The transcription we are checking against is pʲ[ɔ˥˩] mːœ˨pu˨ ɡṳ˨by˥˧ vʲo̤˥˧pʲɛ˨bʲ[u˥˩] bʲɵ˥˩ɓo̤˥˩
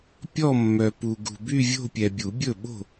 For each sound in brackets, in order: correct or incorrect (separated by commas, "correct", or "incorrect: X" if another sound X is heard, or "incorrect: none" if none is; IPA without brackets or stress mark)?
incorrect: ɔ˥˧, incorrect: u˨˩˦